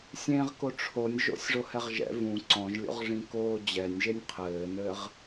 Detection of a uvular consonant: present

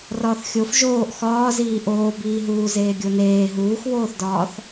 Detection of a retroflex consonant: absent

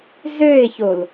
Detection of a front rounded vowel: present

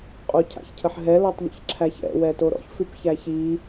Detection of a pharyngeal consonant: present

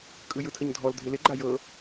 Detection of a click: present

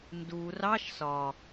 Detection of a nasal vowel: absent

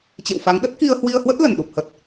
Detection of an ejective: absent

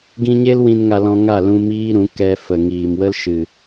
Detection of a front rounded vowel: absent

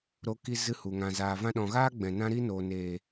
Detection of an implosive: present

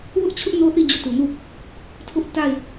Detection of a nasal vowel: absent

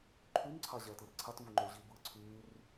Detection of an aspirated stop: present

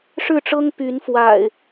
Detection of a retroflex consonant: present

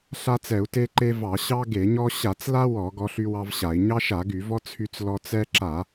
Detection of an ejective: absent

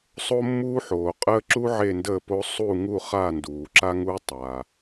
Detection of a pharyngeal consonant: present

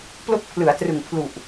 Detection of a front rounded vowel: absent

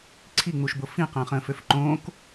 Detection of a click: present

